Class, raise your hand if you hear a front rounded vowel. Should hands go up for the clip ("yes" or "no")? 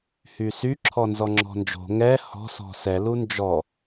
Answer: yes